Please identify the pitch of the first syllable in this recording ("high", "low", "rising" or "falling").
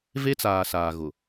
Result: high